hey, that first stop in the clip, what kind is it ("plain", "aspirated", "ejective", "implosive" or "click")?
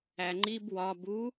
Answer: click